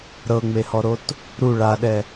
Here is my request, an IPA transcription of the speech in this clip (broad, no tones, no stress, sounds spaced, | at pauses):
ɾ ɤ ŋ͡m e h ɔ ɾ o t | ɾ u ɭ a ɗ ɛ